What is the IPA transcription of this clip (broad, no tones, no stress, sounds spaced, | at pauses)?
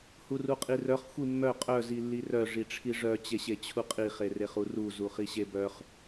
h u r u qʼ i r œ χ xʷ i mː œ qʼ œ z i lː i r œ ʐ i ʈ͡ʂʰ i ʐ œ t͡ɕ e ɕ e t͡ɕʰ u qʼ i χ e r e χ u r u z u χ i ɕ e b œ χ